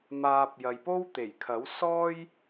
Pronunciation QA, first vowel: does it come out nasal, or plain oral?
oral